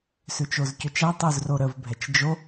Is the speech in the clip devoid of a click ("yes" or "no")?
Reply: yes